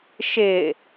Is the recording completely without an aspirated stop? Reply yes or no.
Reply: yes